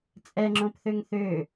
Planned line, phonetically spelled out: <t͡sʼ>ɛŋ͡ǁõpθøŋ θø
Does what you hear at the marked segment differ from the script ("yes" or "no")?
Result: no